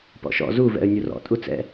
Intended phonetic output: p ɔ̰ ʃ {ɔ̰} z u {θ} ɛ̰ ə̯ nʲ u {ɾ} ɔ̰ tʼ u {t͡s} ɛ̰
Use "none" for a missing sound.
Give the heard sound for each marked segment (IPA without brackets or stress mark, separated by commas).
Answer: ɔ̰, v, r, t͡s